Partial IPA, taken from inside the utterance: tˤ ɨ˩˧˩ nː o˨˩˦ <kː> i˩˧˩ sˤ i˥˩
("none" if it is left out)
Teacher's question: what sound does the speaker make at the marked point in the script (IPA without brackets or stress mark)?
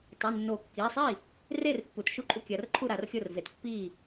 kː